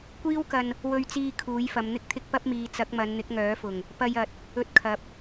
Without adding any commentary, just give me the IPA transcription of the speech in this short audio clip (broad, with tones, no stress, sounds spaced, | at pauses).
kʷ iː˥ w k ɐ˧ n | w ɵ˧ ɥ t͡s iː˧ kʰ uː˨˥ j f ɐ˨˧ m n̪ ɪ˥ k̚ t̪ʰ ɪ˥ k̚ p ɐ˥ p̚ m iː˨˧ t͡s ɐ˨˥ k̚ m ɐ˨˧ n n̪ ɪ˨˥ k̚ ŋ œː˨˥ f ʊ˨˩ ŋ | p ɐ˧ j ɐ˨ t̚ | ɵ˧ t̚ kʰ ɐ˨˥ p̚